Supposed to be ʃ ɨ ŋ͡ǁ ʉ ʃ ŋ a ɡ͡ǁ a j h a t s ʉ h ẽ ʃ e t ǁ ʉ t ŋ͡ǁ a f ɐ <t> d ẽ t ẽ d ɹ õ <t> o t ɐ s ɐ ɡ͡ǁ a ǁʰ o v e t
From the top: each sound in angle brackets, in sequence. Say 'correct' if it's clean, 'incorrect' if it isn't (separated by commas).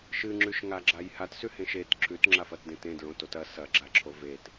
correct, correct